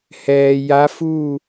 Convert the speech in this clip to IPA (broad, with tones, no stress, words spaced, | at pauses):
hɛː˩ ja˧˥fu˥˨